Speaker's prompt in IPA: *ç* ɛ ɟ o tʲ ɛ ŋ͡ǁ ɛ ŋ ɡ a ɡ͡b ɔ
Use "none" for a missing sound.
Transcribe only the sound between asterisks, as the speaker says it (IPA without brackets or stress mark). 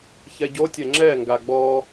ç